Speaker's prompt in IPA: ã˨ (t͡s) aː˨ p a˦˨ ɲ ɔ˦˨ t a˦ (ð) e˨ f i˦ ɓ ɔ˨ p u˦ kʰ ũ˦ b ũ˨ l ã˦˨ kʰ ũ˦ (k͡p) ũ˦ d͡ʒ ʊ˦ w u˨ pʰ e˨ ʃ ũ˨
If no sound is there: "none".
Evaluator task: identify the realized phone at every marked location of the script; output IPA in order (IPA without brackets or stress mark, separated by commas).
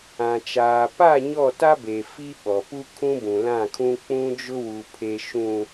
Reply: t͡ʃ, b, k͡p